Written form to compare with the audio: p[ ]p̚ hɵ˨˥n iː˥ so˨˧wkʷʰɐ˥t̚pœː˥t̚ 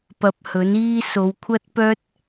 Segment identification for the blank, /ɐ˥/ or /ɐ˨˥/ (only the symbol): ɐ˨˥